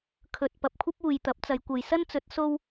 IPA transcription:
kʰ ɵ˨ t̚ p ɐ˨ p̚ kʷʰ ɐ˥ p̚ uː˨ j t̪ ɐ˨˥ p̚ t͡s ɐ˨˧ j kʷ ɐ˨ j s ɐ˥ n t͡s ɵ˨˥ t̚ s o˥ w

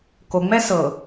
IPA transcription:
k o ŋ͡m ɛ s ɤ

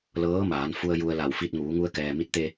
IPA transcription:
l ɤː˧˥ m aː˩˧ n f u˧ ə̯ j u˧ ə̯ l a˧˩ w f i˧ t̚ ŋ uː˩˧ ŋ u˧ ə̯ k ɛː˩ m i˧˥ t̚ t̪ e˧

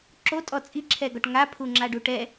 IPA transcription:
ǁ o tʼ ɔ t͡sʼ i ǁʰ ɛ ɡ ɔ ʈ ŋ a pʰ u ŋ͡ǁ a ɖ u ʈ ɛ

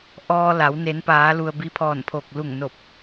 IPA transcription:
ʔ ɔː˧ l a˩˧ w n e˩˧ n p aː˩˧ l u˩ ə̯ b i˧˥ pʰ ɔː˧˩ n pʰ o˧˩ k̚ l u˧˩ ŋ n o˧˩ p̚

